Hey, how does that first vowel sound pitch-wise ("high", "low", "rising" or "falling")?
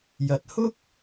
rising